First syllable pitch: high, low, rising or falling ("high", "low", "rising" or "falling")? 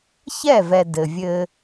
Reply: falling